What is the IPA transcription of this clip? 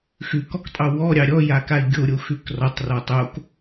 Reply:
x ʉ k ɔ k tʼ ɑ w ɔ ɾʲ ɑ ɾʲ ɔ j a k a i̯ ɡʲ o ɾʲ o x ʉ k r ɔ tˤ r ɔ tˤ o k

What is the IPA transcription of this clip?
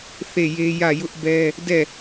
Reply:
θ e˦˨ j e˦ j ä˦˨ j ʊ˦ ʔ b ɛ˦ | d ɛ˦˨

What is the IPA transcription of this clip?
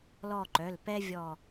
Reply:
l ɔ˦˨ ǃ œ˩˧˩ l p ɛ˦ vʲ ɔ˦˨

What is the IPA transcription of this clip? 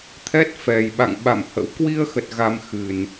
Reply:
t̪ʰ ɛ˦˥ t̚ f ɛ˨˩ j ɓ a̰˧˨ ŋ ɓ a̰˧˨ m h ə̰˧˥ w k w i˧ ə̯ x ə˨˩ t̚ ɣ a˧ m x ɨ˨˩ n

